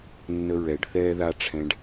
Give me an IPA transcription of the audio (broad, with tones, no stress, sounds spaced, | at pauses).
nː ə˧ ɹ ɛ˨ ɖ θ ɛː˦ ð a˦ ʈ͡ʂʰ ɛ̃˧ ɖ